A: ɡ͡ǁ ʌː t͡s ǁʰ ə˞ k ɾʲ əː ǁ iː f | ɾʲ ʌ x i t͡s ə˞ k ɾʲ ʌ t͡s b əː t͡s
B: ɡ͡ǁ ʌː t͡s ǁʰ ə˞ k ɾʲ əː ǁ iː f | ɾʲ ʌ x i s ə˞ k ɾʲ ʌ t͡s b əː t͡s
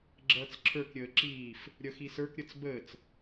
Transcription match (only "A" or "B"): B